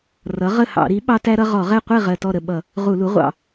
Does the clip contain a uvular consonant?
yes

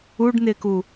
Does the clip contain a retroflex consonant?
yes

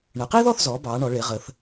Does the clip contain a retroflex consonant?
yes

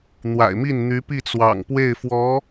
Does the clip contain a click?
no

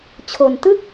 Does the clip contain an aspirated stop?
yes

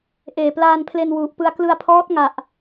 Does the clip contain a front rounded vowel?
no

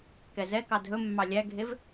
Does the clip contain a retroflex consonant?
no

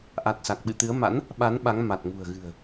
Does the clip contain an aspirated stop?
no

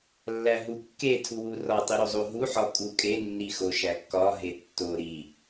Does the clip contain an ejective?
yes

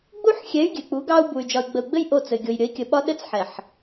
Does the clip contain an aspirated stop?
no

